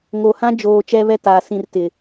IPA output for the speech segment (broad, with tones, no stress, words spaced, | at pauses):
ŋo˨hã˦ d͡ʒoː˨ t͡ʃɛ˦βɛ˦taː˨sĩ˨r tɪ˨